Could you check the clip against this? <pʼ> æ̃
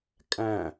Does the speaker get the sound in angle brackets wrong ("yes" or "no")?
yes